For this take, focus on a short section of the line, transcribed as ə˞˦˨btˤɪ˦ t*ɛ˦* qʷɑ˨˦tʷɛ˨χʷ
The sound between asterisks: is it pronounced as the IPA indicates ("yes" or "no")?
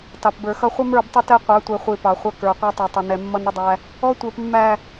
yes